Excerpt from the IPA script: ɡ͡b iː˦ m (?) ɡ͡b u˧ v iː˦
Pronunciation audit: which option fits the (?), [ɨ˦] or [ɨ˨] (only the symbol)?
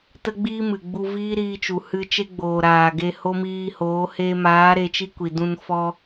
ɨ˨